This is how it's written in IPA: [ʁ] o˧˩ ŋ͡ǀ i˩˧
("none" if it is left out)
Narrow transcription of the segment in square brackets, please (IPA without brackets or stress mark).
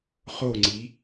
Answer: χ